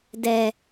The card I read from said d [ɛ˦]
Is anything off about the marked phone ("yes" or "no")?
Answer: yes